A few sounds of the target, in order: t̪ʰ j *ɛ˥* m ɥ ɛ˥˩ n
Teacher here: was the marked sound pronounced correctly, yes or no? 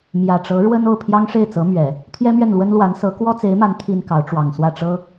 yes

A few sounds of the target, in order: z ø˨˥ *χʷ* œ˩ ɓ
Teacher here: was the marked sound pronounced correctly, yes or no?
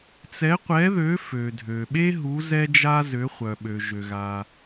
yes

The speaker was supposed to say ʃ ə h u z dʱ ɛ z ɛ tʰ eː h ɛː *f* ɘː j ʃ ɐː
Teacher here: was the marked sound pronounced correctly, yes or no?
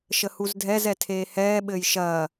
no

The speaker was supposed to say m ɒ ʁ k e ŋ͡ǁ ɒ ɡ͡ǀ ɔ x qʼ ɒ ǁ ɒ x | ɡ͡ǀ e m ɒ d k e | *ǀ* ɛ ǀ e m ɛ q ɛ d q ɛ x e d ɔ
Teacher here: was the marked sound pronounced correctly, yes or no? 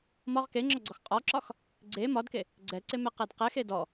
no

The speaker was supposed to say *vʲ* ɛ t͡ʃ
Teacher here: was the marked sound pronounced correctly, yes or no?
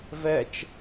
no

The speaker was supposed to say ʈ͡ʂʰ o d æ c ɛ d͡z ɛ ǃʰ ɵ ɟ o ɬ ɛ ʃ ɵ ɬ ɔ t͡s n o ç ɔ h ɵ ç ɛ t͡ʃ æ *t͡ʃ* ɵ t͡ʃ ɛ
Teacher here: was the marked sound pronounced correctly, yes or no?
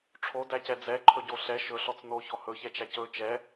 no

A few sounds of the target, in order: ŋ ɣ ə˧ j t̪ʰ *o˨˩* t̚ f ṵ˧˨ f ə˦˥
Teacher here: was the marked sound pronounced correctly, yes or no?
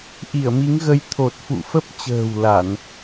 yes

